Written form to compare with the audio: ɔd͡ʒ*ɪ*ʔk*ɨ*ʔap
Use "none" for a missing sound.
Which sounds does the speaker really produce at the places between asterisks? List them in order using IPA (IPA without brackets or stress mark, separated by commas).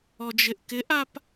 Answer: ɪ, ɪ